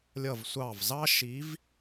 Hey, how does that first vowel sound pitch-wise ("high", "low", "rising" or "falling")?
falling